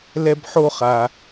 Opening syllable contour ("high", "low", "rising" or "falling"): high